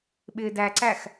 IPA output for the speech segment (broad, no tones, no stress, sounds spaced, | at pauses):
ɓ ɪː d æ ǀ æ x